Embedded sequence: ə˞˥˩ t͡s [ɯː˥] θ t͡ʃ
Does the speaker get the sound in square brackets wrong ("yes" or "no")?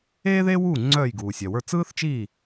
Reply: no